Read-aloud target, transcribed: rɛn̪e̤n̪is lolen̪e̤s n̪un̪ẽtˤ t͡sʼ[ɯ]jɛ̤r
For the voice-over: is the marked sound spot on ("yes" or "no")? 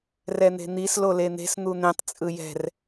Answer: yes